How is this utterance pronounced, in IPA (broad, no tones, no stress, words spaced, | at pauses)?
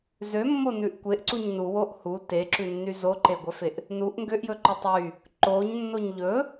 zømːonʉʔ kʷeʔǀuɲ nuwoʔ hu teǁʉnːy zoǃeɡʷœfeʔ | nuʔ ŋɡøʔjɵǃo tˤy | ǃoɲnːoɲ ʎɵ